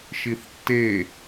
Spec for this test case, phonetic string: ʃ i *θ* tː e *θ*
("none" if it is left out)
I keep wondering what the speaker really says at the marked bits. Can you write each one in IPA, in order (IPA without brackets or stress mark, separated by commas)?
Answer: θ, none